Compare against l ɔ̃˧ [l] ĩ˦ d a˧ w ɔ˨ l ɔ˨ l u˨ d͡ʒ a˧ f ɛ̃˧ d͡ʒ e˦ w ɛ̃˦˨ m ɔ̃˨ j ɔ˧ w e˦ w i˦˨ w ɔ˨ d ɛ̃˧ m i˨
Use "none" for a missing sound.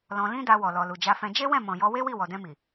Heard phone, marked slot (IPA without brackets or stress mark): l